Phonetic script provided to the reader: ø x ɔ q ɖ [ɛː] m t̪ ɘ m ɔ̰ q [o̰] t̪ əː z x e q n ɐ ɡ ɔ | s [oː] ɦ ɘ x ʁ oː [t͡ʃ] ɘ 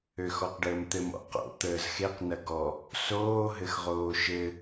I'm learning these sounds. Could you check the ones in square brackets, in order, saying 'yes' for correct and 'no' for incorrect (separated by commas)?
no, yes, yes, no